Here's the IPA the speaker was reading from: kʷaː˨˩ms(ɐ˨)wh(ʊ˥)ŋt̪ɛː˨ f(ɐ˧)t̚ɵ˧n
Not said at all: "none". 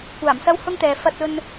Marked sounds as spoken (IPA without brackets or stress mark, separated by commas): ɐ˥, ʊ˥, ɐ˧